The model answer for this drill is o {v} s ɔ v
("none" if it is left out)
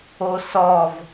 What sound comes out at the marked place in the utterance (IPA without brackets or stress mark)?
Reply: none